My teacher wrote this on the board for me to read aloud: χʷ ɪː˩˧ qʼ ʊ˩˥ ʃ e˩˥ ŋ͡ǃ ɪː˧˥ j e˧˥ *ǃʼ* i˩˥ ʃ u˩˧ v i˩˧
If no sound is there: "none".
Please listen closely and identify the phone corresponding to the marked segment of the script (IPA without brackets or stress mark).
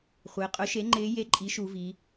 ǃʼ